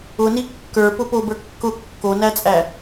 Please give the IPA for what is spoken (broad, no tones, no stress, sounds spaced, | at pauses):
ʊ n i kː ə˞ p ʊ p o b ə˞ kː ʊ kː o n æ t͡sʼ æ